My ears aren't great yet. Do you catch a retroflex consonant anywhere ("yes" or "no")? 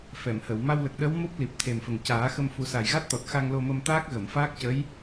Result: no